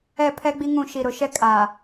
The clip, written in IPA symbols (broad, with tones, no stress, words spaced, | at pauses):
ɛ˦˨ pʰɛ˦ɡ͡bi˦ŋũ˦˨ʃi˨ ɾʊ˨ʃɛ˦ kʼa˨